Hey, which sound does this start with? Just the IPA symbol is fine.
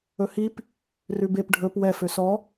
ɵ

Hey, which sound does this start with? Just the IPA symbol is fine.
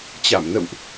t͡ɕ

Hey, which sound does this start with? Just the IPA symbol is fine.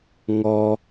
ŋ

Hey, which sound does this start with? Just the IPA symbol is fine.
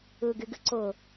ɯ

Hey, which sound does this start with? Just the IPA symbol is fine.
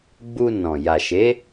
ɡ͡b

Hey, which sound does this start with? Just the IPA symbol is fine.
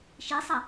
ʃ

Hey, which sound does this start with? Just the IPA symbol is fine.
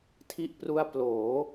tʰ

